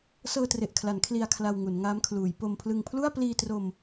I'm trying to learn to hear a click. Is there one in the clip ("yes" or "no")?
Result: no